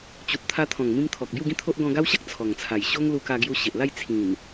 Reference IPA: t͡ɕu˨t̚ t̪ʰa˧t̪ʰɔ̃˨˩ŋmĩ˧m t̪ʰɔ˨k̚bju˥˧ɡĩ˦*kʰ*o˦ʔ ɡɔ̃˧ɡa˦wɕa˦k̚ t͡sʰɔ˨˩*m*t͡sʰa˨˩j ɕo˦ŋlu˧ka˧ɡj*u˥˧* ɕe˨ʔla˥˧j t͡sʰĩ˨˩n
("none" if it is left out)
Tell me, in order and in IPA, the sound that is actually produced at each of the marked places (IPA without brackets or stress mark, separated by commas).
t̪ʰ, ŋ, u˧